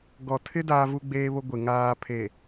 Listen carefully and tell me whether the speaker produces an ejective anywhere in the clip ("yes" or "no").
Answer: no